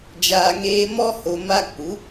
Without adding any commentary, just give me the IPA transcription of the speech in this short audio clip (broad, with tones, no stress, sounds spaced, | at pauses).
d͡ʒ aː˨ ŋ eː˧ m ɔ˦ h o˨ m a˧ k͡p u˨˦